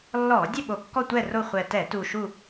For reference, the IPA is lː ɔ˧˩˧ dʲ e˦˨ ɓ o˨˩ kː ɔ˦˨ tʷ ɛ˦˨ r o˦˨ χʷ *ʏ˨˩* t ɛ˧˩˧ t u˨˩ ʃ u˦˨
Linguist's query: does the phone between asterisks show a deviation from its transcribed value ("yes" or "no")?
yes